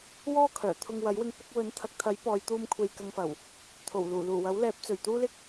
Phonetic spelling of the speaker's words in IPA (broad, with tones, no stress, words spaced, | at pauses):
wɔː˥ kʰœː˨˩ t̪ʰʊ˨ŋ wɐ˨˥jwɪ˧ŋ pʊ˧k̚wɵ˨˥n t̪ʰɐ˨k̚t̪ʰɐ˨˥j pɔː˨˧jt̪uː˧m kʷʰe˧jkɐ˧ŋfɐ˨˩w | t̪ʰo˨˩wluː˨˩luː˨˩ wɐ˨˥wlɛː˨˥p̚t͡sɵ˨˩ɥ t̪uː˥lɪ˥k̚